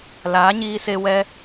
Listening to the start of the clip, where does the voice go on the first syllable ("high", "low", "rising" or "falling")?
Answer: rising